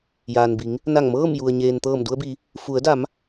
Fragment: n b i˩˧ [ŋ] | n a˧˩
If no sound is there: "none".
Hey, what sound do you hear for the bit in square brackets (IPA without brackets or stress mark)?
ŋ